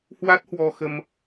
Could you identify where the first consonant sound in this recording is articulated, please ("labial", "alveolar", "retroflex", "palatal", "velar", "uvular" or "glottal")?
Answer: glottal